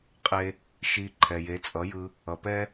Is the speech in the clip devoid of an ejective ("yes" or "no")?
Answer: no